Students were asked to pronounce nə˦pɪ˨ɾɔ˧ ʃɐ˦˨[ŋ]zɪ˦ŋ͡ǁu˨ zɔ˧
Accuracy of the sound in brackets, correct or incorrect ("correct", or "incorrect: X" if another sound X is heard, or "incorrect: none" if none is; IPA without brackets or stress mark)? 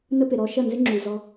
incorrect: n